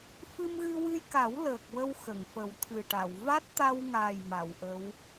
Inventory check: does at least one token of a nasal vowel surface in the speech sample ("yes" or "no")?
no